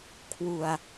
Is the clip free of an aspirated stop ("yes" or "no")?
no